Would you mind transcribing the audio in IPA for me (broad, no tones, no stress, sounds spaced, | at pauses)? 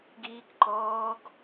ɡ iː k ǃ ɔː ɡ